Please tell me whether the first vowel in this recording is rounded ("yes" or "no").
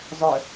yes